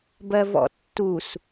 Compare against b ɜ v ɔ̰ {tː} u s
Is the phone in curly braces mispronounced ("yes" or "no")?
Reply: no